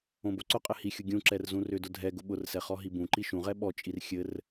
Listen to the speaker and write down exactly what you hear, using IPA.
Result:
õboǀʊqʼɘ hixʲʊ ɡʲũǁɛr zũrʏdʊ dʱɛɡʊ ɓʊrsɛ χɔɦibũǃi ʃũʁɛ ɓɔt͡ʃʼir xʲɘr

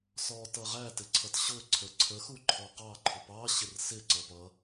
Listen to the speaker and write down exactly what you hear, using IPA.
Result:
sɔ tʌʁæ tɪǀʰʌtɕʊ ǀʰəǀʰə xuǃʰɔqɑ ǃʰʊpɑ ɕɪrsɪ ǀʌpʌ

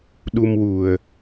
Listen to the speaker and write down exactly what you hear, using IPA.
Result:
ɗu˧mwu˨˩ə̯

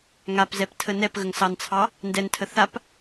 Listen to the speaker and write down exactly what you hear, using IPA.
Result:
ŋapzɛp tʰənɛpɣəŋ sɑnt͡sʰɑ | ndɛntʰə θap

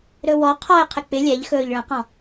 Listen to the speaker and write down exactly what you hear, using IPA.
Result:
ɾɵwɔ qʰɔɪ̯ qʰɪk͡pɪ lʲɛʎ xɵːʎɭə̃qɔ̃

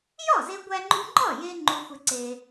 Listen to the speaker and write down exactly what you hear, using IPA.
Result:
jɒ˥˩ze˧ɡʷæ˧ŋ͡ǃu˧ ŋ͡ǃɒ˥˩je˧ ŋ͡ǃu˧xʷe˧ǀe˧

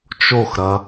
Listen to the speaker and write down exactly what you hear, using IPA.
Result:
t͡ʃoxɾɐ

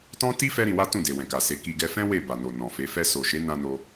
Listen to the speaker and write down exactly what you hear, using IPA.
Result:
tɔ̃˦ ti˦ fɛ˦ɾĩ˧wa˦ tũ˦˨de˨wɛ̃˨ka˨ se˨˦ki˧ ɡɛ˧fɛ̃˦ we˦˨ba˨no˨ nɔ̃˨fe˨˦ fɛ˧so˨ʃe˨˦ nã˦ no˦

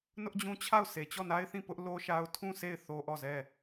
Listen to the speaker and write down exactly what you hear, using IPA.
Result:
nʊ˦ʔd͡ʑũ˦t͡ɕʰa˦˨ʊ̯ sʰe˨t͡ɕɔ˦˨na˦ɪ̯θĩ˦˨ pʊ˦ʔlo˦ʃa˦ʊ̯ tʰũ˦˨se˦˨ɪ̯ θo˦ʔɔ˦˨zɛ˦˨

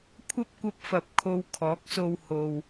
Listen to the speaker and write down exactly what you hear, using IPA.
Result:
kʷʰɐ˥p̚kʷɐ˧p̚fɐ˨p̚ kʰo˧wkʰɔː˨˥k̚so˧w ho˨w

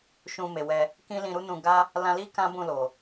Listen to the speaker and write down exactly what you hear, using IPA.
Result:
ʃũ˧me˨wɛ˧ | kĩ˦lĩ˧ɾu˦nũ˧ ɡa˦ | lã˧li˦ kã˦ bũ˦˨ lo˨

